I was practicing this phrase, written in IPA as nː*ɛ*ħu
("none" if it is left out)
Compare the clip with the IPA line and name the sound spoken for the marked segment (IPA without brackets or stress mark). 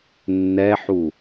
ɛ